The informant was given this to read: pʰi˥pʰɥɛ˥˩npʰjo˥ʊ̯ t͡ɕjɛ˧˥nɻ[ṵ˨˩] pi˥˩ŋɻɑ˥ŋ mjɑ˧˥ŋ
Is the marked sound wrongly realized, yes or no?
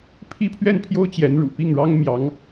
no